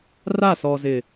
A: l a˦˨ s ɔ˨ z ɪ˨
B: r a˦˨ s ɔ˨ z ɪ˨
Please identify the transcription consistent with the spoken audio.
B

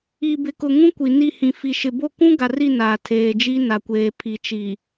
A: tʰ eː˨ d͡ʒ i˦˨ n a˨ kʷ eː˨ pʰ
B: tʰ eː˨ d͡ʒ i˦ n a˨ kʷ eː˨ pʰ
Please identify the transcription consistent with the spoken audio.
B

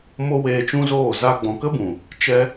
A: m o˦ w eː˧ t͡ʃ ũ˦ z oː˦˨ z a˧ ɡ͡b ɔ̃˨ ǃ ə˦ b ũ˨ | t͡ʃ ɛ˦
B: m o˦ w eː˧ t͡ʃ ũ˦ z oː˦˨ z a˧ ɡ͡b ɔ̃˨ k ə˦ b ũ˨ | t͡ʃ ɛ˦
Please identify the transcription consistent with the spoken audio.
B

